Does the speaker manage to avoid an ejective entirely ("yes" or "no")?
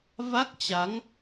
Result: yes